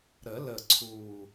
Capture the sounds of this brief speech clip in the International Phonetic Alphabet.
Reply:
ɾ ə˨˩˦ l ə˨˩ ǀʰ u˨˩

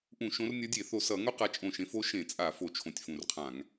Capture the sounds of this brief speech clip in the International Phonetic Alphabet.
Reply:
ʔ ũ˧˩˧ ʃ õ˨˦ r nʲ ʌ˨˦ dʲ e˧˩˧ θ o˧˩ s ʌ˧˩˧ ŋ o˥ q a˨˦ t͡ʃʼ õ˧˩ ʃ ẽ˨˦ f o˥ ʃ ẽ˧˩˧ t͡sʼ a˧˩˧ f o˧˩ t͡ʃʰ õ˧˩ tʲ f ũ˧˩ r qʰ ã˧˩˧ ŋ

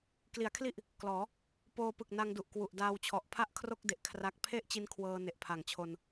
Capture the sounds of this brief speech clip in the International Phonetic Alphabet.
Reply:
k l i˩˦ a̯ kʰ l i˥˩ ʔ | k l ɔː˩˦ | p oː˧ p ɯ˨˩ k̚ n a˧ ŋ d u˨˩ ʔ k w u˨˩ ʔ d aː˧ w t͡ɕʰ ɔ˨˩ ʔ pʰ a˥˩ ʔ kʰ r o˥˩ k̚ d e˨˩ ʔ kʰ r a˦˥ k̚ pʰ e˥˩ ʔ t͡ɕ i˧ n kʰ w ɤː˧ n e˨˩ ʔ pʰ a˨˩ ŋ t͡ɕʰ o˧ n

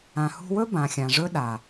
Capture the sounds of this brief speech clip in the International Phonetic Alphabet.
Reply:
ã˨ h ṳ˧ w ɵ˦ b ã˨ xʲ ã˨ ʐ ɵ˦ ɗ a˨

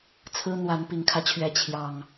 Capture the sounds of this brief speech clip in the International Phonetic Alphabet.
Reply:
t͡sʰ ɹ̩˦ n̪ w a˨˦ n p i˨˩ ŋ kʰ ä˦ t͡ɕʰ ɥ ɛ˨˦ t͡ɕʰ j ɑ˨˩ ŋ

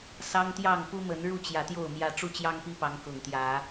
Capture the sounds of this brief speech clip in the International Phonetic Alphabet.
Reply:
s ɑ˦ ŋ t̪ j ɑ˥˨ ŋ p u˦ m ə˨˦ n ɻ u˥˨ t͡ɕ j ä˨˦ t̪ j o˥˨ ʊ̯ m j ä˦ ʈ͡ʂ u˥˨ t͡ɕ j ɑ˦ ŋ p i˦ p ɑ˨˦ ŋ k ʊ˨˩ ŋ t̪ j ä˨˦

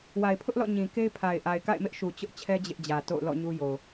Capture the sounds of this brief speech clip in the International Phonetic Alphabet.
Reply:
w a˨ ɪ̯ pʰ ʊ˦ ʔ l ɔ̰˦˨ ɲ ĩ˨ k e˦ ɪ̯ pʰ a˨ ɪ̯ ʔ a˨ ɪ̯ k a̰˦˨ ɪ̯ m ɪ˦ ʔ ʃ u˨ t͡ɕ ʊ˦ ʔ t͡ɕʰ ɛ˦ d͡ʑ ɪ˦ ʔ d͡ʑ ä˨ t o̰˦˨ ʊ̯ l ɔ̰˦˨ ɲ u˦ j o˨

